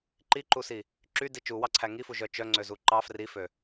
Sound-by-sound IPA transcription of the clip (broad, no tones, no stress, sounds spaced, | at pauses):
ǃ i ǃ u s i | ǁ y d i t͡ʃ u w ɑ ǀʰ æ ŋ i f u ʒ œ t͡ʃ œ ŋ͡ǀ ø z u ǃ ɑ f r i f ø